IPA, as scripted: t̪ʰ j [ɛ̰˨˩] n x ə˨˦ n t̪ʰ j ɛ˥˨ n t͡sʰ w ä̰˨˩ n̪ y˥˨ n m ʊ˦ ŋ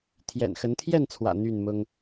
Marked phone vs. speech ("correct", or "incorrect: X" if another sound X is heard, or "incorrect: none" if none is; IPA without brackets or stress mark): correct